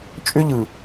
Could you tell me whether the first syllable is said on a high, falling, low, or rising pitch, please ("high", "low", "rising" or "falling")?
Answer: high